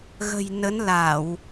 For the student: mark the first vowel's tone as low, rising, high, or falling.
low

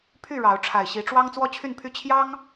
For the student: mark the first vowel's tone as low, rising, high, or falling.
falling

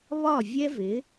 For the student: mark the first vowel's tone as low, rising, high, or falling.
falling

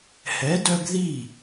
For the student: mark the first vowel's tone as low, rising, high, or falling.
rising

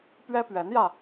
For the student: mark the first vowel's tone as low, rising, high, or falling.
high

